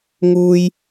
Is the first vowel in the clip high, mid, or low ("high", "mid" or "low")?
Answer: high